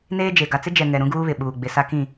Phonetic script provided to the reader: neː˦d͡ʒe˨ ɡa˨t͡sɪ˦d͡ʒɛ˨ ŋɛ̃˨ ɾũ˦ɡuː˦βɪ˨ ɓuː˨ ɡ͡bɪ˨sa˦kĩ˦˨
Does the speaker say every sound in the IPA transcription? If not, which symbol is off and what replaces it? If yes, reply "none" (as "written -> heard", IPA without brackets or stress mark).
ɛ̃˨ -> ɛ˨